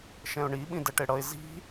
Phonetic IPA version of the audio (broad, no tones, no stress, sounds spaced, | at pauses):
ʃ ɛ̃ ʊ̯ ɳ i ɓ ĩ d ɛ ʈ e ɽ ʌ ɪ̯ z i̤